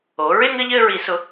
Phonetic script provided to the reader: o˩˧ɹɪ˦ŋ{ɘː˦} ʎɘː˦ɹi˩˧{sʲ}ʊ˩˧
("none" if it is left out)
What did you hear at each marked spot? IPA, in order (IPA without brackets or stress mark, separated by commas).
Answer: ɘ˦, s